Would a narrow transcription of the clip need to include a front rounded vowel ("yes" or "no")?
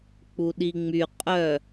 yes